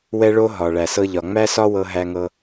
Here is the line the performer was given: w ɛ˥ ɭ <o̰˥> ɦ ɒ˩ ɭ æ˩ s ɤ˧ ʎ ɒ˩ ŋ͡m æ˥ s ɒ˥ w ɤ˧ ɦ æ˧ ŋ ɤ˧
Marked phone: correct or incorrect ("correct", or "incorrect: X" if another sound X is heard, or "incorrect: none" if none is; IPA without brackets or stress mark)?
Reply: incorrect: o˥